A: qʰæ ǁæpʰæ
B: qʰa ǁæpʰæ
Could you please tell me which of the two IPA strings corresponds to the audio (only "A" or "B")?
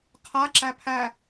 B